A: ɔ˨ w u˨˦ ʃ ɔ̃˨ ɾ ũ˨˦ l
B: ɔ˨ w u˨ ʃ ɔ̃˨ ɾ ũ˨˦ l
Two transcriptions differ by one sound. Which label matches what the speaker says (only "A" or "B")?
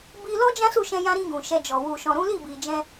B